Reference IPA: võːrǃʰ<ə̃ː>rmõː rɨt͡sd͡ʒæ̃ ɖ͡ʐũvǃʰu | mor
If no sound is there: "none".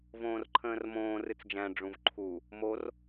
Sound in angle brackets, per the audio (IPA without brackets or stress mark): ə̃ː